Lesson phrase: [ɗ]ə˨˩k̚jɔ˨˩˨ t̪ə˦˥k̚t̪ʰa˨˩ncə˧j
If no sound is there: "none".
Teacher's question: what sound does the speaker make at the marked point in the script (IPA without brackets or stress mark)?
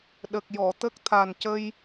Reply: ɗ